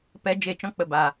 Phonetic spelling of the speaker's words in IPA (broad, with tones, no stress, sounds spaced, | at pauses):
p ɛ˧ d͡ʒ e˦˨ t͡ʃ ɔ̃˦ k͡p ə˧ b a˨